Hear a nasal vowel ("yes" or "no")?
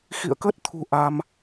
no